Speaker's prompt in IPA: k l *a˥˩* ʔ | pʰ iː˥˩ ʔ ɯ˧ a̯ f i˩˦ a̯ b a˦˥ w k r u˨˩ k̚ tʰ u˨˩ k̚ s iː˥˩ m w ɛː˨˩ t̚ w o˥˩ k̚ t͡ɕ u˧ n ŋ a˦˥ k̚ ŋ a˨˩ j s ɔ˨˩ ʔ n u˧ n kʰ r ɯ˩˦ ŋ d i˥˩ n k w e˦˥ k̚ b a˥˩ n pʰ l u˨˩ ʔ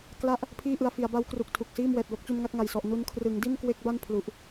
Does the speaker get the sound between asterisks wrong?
no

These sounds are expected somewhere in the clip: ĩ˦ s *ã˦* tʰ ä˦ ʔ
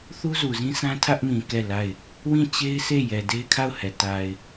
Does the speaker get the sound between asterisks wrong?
no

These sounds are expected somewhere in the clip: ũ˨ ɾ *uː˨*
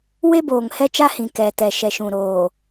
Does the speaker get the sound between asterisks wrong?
yes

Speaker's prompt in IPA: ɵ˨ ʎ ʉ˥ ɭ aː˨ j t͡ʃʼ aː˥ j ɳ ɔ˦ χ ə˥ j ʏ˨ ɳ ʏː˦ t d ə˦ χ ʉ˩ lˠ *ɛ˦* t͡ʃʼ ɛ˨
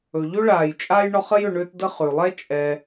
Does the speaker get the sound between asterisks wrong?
yes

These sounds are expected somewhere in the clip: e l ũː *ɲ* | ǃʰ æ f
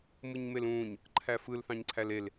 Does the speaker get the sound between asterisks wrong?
no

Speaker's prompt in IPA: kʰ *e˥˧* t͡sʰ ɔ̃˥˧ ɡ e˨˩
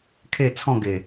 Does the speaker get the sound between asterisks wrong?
no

